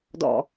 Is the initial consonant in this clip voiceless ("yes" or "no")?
no